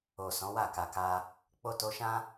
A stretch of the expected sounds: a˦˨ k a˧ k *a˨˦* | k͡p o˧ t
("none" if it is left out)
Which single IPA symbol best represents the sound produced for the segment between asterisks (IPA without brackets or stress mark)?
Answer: a˦